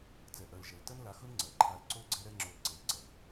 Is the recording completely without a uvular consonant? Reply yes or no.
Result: yes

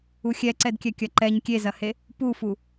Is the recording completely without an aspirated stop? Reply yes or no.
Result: yes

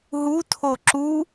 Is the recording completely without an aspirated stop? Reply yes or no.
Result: no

